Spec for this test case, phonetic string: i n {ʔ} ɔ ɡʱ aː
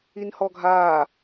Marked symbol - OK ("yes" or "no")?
no